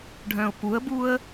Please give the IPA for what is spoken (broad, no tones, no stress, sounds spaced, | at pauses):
ɖʱ œ̃ ʊ̯ p u ə̯ b u ə̯